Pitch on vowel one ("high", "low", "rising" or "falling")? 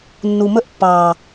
low